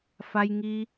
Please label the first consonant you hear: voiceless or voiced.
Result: voiceless